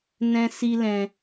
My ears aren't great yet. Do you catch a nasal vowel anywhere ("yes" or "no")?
yes